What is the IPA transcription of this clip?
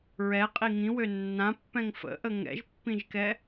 ɹ ɛ qʼ i ŋ ĩ w ø nː ã pː ɛ̃ ŋ f ə̰ ʔ ə ŋ ɛ̰ ʒ pː ĩ ʒ k ɛ

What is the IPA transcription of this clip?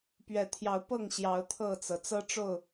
p ɥ ɛ˨˦ t̪ʰ j ɑ˨˦ ʊ̯ p ɤ˥˨ ŋ ɕ j ɑ˨˦ ʊ̯ t̪ʰ ɤ˥˨ t͡s ɤ˩ t͡s ɤ˦ ʈ͡ʂ o˥˨ ʊ̯

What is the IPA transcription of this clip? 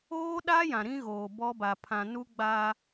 oː˦ ɗ aː˦ j ã˨ ɾ ĩ˦ ɣ oː˨ b ɔ˦ b a˨ pʰ ã˨ n u˦ ɡ͡b a˦

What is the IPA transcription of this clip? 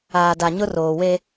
aː˨ d a˨ ɲ ʊ˦ r oː˨ w e˦

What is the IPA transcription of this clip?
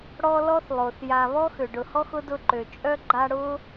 ɽ ɔ˦ l ɔ˥ θ lˠ o˩ θ j a˨ β ɔ˥ x ø˩ ɖ ʊ˨ h ɔ˥ x ʊ˥ d ʊ˦ ǃ ø˩ t͡ʃʼ œ˥ ɡ͡ǃ a˦ ɽ ʊ˥

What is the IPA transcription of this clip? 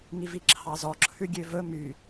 ŋ i v i ǁʰ ɑ z ɔ ǁʰ ʉ ɡʲ ø v ɵ m y

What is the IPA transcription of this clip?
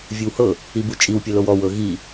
vʲ ɯ w h ɤ | i b u t͡ʃʼ i w pʲ ɤ l o w ɔ w ɤ ɣ i

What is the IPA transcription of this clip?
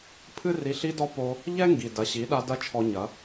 pʰ ɨ˦ r i˧ ɬ i˦ d ɔ˦ p o˧ | ʎ ɛ˦ ŋ ɡ i˨ d ɐ˨ ɕ i˨˦ ɗ a˧ d ɐ˦ t͡ʃʰ ɔ˧ ɲ ɐ˨˦

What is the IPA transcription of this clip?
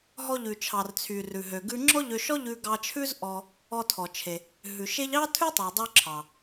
ɦ ɔ˧ ʎ ʉ˩ t͡ʃʰ ɑ˩ r t͡sʰ y˩ r ʉ˩ ɦ ø˩ ɡ ʉ˧ ŋ͡ǁ ɔ˥ ʎ ø˧ ʃ ɔ˥ ʎ ʉ˧ ɡ ɑ˧ t͡ʃʰ ʉ˥ z ʔ ɔ˧ | ɔ˧ tʰ ɔ˩ t͡ʃʰ e˩ | ɦ ʉ˩ ʃ e˥ ʎ ɑ˥ tʰ ʉ˥ tˤ ø˩ dˤ ø˧ ǁʰ ɑ˩

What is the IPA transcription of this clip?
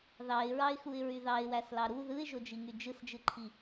ð ɑ ɪ̯ ɹ ɑ ɪ̯ x u ɪ̯ ɹ y ð ɑ ɪ̯ w æ s l ɑ ɾ u ð ɯ ɪ̯ ʒ o d͡ʒ i ŋ y d͡ʒ ɯ s d͡ʒ ɯ ǃʰ i

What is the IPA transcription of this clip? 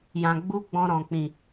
j ã˨ ɡ͡b u˧ ɡ͡b ɔ̃˧ ɾ ɔ̃˨ k͡p ĩ˨

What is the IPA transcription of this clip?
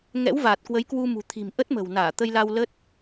ŋ ɛ̰˧˥ w v aː˨˩ t̚ k w ə˨˦ j k w u˧ m ṳ˨˩ t̪ʰ i̤˨˩ m ʔ ə˦˥ t̚ m ə̤˨˩ w n aː˧˩ t̪ ə˧ j l a˧ w l ə˦˥ t̚

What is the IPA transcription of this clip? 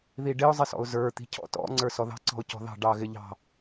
ð i ɖ ɪ ʊ̯ zˤ ɪ s ɔ̰ ʊ̯ z ə˞ t̪ i̤ cʰ ɔ̰ t ɔ̰ ŋ͡ǀ ə˞ s ɔ ð ɑ̤ ǀ ɔ̤ ʊ̯ c ɔ̤ ð ɑ̤ ɖ ɑ ɣ ɪ ʎ ɑ̤

